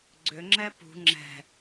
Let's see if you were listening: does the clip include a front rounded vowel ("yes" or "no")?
yes